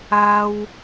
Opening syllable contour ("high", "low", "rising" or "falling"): high